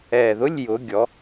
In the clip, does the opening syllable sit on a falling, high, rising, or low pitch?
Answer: low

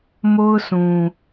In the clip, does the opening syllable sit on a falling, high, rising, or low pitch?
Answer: high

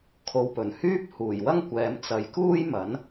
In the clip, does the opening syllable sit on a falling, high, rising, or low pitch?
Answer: low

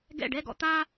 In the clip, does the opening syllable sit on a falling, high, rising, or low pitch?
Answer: falling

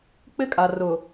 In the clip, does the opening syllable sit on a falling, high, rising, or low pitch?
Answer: high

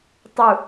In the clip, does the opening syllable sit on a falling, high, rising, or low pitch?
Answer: low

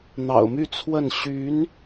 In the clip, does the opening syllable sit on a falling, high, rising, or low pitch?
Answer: low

